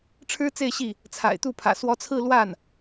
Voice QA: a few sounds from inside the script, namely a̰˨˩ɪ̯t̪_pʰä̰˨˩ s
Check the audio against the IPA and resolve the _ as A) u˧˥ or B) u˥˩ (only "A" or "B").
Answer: B